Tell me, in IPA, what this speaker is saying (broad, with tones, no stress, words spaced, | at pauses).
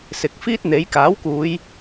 sɪ˨k̚fiː˥t̚ n̪e˨˥j kaː˨˥wkuː˨˧j